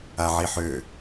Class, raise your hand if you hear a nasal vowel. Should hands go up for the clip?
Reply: no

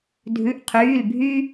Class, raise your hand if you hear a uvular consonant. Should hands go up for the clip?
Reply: yes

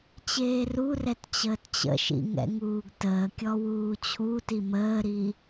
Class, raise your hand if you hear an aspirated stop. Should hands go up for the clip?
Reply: yes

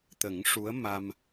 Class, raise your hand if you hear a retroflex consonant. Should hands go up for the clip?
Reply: yes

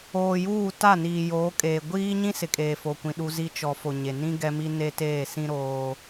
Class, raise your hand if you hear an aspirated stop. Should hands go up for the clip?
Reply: no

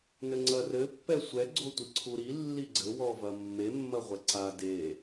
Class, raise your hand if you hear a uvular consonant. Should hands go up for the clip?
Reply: yes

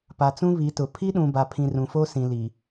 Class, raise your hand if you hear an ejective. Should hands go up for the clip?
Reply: no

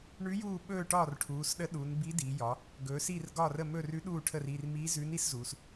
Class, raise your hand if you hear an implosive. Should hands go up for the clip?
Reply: yes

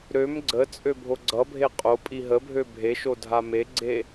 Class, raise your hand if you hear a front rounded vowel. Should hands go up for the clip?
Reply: yes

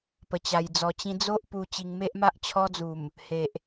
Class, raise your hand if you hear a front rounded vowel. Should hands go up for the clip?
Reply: no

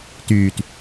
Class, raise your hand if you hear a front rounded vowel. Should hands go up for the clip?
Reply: yes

